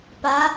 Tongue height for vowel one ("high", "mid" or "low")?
low